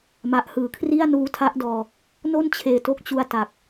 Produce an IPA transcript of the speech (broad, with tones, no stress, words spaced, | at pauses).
ma˨˩ʔhɯː˨˩kʰri˥˩a̯ nuː˧tʰa˦˥ʔdɔː˧ | no˥˩nt͡ɕʰeː˨˩to˦˥k̚t͡ɕu˧a̯ ta˨˩k̚